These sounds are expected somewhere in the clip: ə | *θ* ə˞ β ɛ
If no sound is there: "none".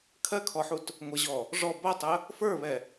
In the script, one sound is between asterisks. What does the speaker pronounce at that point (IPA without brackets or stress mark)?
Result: f